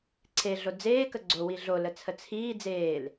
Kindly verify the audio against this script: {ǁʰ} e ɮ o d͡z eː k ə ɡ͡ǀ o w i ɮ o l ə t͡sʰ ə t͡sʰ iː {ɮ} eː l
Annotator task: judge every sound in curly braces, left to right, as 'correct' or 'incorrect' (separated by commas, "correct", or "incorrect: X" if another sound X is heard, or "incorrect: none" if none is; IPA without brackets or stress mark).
incorrect: ǀʰ, incorrect: d͡z